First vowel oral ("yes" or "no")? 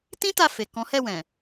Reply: no